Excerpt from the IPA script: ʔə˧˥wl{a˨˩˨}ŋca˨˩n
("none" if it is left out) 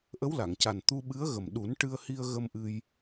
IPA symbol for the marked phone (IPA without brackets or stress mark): a˨˩˨